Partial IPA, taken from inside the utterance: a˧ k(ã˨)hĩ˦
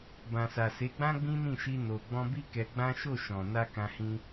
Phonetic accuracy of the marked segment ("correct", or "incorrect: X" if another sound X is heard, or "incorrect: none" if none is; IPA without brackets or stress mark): incorrect: ã˧